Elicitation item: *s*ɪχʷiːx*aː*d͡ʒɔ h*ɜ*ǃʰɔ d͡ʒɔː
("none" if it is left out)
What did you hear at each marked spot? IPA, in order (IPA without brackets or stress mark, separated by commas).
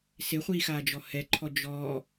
s, aː, ɛ